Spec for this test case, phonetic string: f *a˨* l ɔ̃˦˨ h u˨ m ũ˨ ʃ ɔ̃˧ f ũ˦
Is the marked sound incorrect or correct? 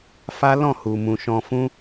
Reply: incorrect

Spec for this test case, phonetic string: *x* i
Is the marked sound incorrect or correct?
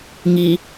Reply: incorrect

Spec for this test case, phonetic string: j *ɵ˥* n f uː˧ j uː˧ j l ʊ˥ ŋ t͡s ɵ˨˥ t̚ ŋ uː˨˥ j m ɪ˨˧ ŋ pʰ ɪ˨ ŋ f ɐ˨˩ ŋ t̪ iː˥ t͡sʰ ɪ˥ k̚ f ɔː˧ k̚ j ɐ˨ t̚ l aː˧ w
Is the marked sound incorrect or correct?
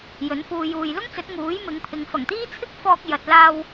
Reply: incorrect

